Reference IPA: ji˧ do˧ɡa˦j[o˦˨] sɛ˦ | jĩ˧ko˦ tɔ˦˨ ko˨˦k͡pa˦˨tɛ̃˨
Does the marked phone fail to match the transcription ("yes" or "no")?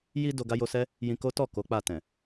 yes